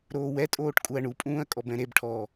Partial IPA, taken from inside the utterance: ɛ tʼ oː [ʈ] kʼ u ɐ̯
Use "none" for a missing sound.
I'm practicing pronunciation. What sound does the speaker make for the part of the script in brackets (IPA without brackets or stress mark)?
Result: ʈ